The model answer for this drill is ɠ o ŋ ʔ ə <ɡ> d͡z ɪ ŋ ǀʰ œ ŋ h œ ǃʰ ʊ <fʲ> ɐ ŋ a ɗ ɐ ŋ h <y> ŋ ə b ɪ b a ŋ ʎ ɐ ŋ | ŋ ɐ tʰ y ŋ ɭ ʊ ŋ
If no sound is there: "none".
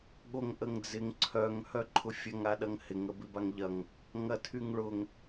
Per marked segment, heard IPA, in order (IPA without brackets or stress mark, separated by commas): ŋ, fʲ, ɪ